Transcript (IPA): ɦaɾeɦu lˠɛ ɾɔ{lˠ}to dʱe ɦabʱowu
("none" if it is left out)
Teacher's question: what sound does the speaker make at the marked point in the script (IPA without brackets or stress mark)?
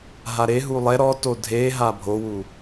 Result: none